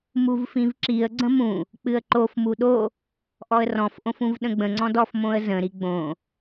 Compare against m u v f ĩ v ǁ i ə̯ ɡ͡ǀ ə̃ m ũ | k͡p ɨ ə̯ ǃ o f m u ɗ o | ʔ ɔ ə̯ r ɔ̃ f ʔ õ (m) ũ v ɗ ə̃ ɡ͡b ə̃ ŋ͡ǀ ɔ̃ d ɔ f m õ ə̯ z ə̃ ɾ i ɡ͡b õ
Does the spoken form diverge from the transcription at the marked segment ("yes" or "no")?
yes